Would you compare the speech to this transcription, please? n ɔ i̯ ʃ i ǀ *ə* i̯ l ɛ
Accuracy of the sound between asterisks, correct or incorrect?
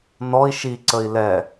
correct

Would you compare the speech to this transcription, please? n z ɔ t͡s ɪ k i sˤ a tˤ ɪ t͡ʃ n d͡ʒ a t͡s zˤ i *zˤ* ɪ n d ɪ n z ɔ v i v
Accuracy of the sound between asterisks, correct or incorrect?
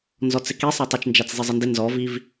correct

